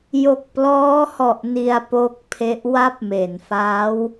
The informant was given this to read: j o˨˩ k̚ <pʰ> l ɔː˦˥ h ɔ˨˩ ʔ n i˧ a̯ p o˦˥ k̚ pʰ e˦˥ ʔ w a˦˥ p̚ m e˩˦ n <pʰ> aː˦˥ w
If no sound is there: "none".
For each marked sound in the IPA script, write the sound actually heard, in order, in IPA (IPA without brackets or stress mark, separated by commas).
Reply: p, f